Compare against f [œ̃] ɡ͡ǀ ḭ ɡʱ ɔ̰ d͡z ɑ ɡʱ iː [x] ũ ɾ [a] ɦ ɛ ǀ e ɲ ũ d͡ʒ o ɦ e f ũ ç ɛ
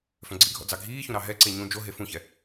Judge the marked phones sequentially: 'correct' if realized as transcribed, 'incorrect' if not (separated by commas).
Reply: correct, incorrect, incorrect